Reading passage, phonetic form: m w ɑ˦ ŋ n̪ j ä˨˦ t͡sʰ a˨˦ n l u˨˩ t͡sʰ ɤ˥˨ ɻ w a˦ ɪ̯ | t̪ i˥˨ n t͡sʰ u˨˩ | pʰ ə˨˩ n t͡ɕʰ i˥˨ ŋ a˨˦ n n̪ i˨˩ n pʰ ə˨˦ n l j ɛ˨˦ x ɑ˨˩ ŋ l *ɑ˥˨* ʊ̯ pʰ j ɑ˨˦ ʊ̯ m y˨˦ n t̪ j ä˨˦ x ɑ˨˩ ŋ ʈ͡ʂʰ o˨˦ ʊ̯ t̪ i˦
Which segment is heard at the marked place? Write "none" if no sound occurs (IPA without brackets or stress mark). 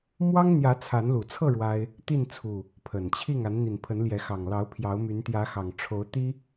ɑ˨˦